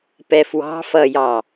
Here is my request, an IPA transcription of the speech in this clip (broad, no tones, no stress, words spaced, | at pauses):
pɛfwɑ̤ fʌjɑ